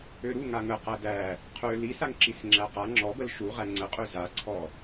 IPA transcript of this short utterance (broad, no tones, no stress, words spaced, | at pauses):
øɾu ŋaŋə qædæ | qʰø lisaŋǁis ŋ͡ǁæqa ŋ͡ǁɔbəl ʃu ʁæŋ͡ǀəqʼø zaǀʰɔ